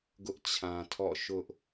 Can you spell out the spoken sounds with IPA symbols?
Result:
ɡʊ˦ʔt͡ɕʰã˨tʰɔ̰˦˨ ʃʊ˦ʔ

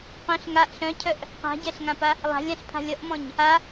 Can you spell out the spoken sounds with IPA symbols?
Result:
qœ̃ɬ ŋaʔ ɬœ̃cʰœʔ | qa̤ɟɛɬŋãpa | lˠa̤lʲãɬpʰa̤lʲ ʌʔmɔ̃ɲ | a

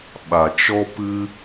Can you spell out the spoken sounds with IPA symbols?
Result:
ɓa˨t͡ʃɔ˦ pɨ˦

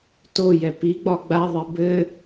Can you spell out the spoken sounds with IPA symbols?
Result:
tojɛ piɡ͡bɒ ɡ͡baðˤɛ bɘ

